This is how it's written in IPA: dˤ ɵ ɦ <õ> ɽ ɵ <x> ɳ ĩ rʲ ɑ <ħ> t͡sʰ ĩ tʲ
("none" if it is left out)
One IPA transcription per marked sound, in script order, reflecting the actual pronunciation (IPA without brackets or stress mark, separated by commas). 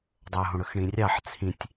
õ, x, ħ